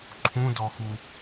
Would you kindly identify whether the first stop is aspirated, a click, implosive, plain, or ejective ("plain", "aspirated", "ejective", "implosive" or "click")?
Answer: click